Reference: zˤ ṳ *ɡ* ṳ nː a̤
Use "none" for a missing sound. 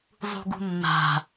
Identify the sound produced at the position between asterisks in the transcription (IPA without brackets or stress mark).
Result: ɡ